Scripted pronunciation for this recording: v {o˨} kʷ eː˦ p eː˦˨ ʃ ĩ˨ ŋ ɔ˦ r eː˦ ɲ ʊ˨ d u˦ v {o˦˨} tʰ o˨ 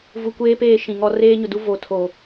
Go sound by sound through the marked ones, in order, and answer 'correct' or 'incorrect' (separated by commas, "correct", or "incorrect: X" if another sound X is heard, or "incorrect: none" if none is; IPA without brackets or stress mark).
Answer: incorrect: u˨, incorrect: o˨˦